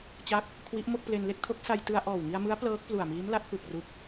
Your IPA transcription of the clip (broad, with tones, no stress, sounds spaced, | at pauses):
t͡ɕ a˦˥ k̚ | kʰ w i˦˥ ʔ m o˥˩ k̚ p l e˧ n l e˥˩ k̚ tʰ o˦˥ k̚ s a˧ j t ɯ˧ a̯ ʔ ɔː˨˩ w ŋ i˧ a̯ m ɯ˦˥ a̯ p l ɤː˦˥ k̚ p l u˨˩ a̯ m iː˦˥ m l a˦˥ t̚ f ɯ˨˩ k̚ r u˦˥ k̚